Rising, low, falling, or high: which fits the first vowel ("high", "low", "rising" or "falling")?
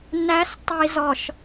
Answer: rising